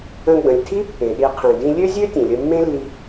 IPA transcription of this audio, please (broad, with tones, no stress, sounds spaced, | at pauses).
ə̃˧ ɡ͡b ə̃˩ lʲ tʰ i˥ pː ẽ˩ ɗ i˧ qʰ ĩ˩ d ĩ˧ lʲ ø˥ zʲ ø˥ tʲ ẽ˩ lʲ ə˧ mː ẽ˥ lː i˧